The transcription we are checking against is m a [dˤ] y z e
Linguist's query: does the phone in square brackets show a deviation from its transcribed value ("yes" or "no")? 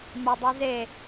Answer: no